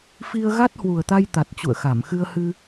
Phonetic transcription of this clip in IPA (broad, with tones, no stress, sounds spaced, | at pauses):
f i˧ ə̯ ɣ a˦˥ t̚ h w u˨˩ ə̯ t̪ a˧ j t̪ a˨˩ t̚ t͡ɕ ṵ˧˨ ə̯ x a˧˩ m x ɨ˧ ə̯ h ɨ˧